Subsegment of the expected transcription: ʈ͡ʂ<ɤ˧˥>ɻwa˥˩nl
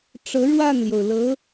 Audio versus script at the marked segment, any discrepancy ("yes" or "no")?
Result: no